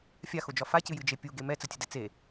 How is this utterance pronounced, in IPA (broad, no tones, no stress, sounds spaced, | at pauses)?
fʲ a x o d͡ʒ ɒ f a c ɨ j ɨ d͡ʒ e pʲ u ɡ e m ɛ t͡s ɘ tʲ ɘ d ɛ t͡s e